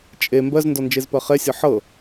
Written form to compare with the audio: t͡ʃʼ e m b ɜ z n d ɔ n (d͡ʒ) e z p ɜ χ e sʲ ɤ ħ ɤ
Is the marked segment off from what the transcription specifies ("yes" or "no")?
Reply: no